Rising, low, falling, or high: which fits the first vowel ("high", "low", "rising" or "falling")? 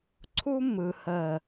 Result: high